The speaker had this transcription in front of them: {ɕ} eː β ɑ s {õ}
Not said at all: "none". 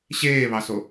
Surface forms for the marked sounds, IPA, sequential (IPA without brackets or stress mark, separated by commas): ɕ, o